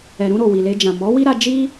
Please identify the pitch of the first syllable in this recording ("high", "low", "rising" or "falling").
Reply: low